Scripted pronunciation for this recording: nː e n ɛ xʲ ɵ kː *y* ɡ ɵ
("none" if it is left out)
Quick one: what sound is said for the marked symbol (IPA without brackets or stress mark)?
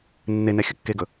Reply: e